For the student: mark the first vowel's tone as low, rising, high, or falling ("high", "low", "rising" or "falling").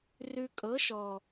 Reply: low